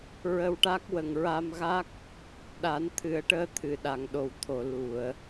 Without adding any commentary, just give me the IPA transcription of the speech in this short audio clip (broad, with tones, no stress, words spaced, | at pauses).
ɹə˧wʈa˦˥k̚ wə˨˩ŋɹa˧mɣa˦˥k̚ | ɗa˨˩˦nt̪ʰɨ˨˩˦ə̯ʈəː˧t̪ʰɨ˨˩˨ ɗa˨˩˨ŋɗo˨˩wt̪ʰo˨˩˨ lu˨˩˨ə̯